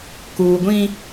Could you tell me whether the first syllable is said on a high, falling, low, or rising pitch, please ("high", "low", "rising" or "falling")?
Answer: low